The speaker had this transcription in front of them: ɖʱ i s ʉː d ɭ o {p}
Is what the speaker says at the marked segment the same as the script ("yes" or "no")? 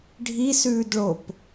yes